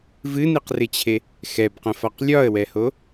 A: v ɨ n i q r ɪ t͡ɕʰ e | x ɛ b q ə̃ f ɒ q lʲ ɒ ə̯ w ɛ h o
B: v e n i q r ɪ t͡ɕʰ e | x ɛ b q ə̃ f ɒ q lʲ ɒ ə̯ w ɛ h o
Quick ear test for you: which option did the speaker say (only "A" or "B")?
A